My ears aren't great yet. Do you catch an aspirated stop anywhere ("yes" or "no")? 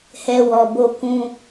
no